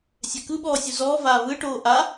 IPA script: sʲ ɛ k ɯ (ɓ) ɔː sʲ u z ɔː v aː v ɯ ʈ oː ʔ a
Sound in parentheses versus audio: correct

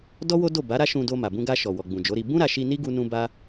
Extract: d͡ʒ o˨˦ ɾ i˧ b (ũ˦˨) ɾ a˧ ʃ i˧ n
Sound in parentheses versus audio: incorrect: ũ˦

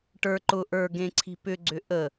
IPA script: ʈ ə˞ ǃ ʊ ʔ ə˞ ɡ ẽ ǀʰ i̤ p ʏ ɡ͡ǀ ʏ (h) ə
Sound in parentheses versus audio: incorrect: ʔ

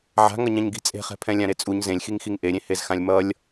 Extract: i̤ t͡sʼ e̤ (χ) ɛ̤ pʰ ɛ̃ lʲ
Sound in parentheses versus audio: correct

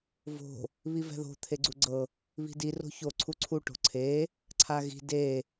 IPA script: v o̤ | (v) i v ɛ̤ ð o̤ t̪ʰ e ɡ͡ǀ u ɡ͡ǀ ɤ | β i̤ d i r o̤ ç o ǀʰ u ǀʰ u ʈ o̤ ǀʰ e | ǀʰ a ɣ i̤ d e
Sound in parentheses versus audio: incorrect: β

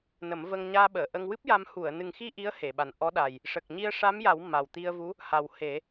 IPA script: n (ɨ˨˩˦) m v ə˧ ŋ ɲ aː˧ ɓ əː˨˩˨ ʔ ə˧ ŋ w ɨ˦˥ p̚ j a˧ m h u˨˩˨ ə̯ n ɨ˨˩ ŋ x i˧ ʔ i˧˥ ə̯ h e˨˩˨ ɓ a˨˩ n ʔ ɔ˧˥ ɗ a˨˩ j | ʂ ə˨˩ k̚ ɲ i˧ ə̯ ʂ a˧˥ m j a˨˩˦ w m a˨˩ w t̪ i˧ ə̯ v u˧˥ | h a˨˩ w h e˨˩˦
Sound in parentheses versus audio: incorrect: ə˨˩˦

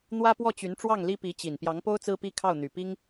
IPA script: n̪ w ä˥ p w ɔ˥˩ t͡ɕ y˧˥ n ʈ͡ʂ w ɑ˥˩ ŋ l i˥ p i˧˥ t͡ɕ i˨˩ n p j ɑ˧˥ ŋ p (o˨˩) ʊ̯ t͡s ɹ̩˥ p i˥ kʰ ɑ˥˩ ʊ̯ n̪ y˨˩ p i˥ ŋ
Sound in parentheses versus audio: incorrect: o˥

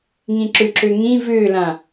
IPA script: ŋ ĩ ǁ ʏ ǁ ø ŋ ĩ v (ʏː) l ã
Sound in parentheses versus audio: correct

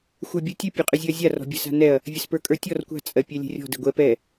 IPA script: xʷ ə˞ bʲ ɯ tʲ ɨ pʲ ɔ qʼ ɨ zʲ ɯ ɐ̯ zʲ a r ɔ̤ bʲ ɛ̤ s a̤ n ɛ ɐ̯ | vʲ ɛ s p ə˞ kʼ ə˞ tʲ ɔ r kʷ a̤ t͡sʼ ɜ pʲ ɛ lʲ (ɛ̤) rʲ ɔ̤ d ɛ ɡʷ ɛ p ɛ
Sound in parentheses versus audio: correct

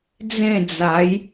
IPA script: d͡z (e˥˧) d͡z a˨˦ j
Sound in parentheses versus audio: incorrect: ẽ˥˧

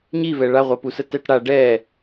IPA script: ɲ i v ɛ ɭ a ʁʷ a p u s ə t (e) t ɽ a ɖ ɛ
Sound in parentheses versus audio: incorrect: ɛ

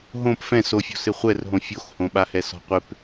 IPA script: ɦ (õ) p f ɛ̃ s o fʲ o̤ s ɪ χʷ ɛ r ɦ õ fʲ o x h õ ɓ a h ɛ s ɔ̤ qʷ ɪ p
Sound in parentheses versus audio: correct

